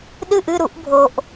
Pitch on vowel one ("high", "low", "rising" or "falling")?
falling